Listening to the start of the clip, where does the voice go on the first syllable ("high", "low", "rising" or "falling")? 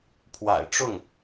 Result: low